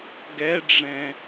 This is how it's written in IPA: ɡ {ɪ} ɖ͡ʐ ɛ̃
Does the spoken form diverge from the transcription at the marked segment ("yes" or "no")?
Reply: yes